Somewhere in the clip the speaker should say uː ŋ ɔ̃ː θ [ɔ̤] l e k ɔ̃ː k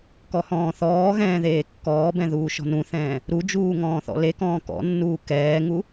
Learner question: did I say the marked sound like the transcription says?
no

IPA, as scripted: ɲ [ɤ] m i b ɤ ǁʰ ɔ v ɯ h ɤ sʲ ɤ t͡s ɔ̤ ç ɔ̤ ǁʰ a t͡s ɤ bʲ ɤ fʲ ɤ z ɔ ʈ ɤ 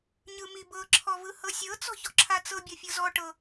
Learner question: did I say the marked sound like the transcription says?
no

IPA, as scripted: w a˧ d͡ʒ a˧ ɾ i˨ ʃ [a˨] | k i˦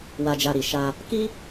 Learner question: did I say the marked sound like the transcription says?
no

